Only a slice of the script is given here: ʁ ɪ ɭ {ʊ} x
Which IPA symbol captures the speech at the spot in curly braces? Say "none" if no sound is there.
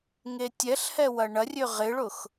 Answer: ʊ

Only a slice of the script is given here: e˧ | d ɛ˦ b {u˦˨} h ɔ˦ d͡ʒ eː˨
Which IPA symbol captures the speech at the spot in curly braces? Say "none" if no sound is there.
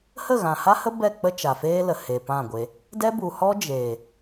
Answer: u˨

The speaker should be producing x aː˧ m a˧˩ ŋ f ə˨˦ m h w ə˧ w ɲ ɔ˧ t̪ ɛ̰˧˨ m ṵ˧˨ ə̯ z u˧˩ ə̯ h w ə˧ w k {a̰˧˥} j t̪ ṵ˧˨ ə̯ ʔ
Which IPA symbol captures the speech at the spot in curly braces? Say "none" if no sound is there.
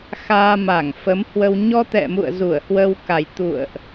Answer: a˨˩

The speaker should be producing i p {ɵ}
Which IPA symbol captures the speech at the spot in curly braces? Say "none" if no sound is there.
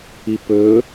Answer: ɵ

